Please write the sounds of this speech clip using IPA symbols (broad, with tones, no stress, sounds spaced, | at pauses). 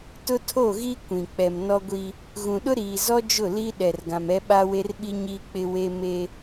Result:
t ʊ˦ tʰ o˦˨ ɣ i˦ kʷ ĩ˨ k͡p ɛ˨ m n ɔ˦ ɡʷ i˦ | ɣ ũ˨ ɗ ʊ˦ ɾ iː˨ z ɔ˦ d͡ʒ ʊ˦˨ l i˦ ɗ ɛ˨ r ɡ ã˨ m ɛ˦ ɓ a˦ w e˦ r ɓ i˦ ɲ iː˦ k͡p ɪ˦ w e˦ m e˦